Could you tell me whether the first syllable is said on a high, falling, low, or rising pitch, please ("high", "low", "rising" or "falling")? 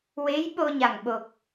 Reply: rising